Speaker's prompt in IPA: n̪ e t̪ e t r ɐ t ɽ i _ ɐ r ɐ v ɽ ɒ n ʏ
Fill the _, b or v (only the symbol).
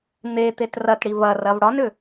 v